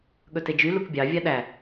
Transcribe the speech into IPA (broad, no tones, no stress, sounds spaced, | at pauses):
ɠ ɵ t e d͡ʒ y l u k bʲ ɑ vʲ ɑ ɗ æ